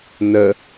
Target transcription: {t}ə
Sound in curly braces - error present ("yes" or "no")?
yes